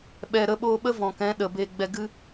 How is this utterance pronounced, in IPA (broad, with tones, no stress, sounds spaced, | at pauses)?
ɓ ɛ˨ ɾ ə˧ ɓ oː˧ ɓ ə˦ v ɔ̃˨ k ɛ̃˨˦ ɗ ə˨ b e˧ ɡ͡b ɛ˧ ɡ ɨ˦